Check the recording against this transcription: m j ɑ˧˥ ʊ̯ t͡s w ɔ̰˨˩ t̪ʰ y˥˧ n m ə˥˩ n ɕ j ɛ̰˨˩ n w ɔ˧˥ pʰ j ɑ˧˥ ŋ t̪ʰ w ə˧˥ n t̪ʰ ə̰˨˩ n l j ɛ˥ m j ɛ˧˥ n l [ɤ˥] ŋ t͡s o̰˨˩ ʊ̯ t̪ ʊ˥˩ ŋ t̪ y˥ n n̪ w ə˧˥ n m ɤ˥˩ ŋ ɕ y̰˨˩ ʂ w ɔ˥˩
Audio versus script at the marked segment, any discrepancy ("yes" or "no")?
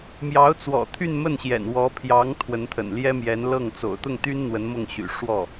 yes